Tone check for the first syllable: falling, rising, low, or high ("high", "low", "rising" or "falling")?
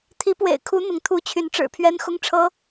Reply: rising